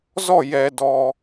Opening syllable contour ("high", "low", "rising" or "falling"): falling